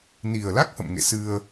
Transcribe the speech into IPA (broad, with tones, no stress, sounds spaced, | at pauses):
n i˨˩ ə̯ l a˦˥ k̚ h ə̰˧˨ m ŋ ḛ˧˨ s ɨ˧ ə̯